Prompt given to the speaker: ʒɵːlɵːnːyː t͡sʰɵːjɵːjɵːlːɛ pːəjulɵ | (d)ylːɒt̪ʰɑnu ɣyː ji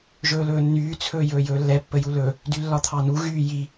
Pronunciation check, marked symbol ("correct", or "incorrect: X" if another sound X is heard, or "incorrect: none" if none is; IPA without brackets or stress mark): correct